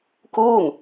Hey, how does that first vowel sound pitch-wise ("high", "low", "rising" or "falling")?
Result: falling